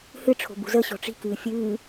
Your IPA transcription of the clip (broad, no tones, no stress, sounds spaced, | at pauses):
h ɨ ʈ͡ʂʰ o̤ b ṳ z ə ɕ ɔ̤ ʈ͡ʂ i̤ k ɨː fʲ ɨː